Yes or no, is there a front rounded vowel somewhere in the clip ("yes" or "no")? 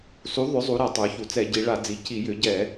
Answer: yes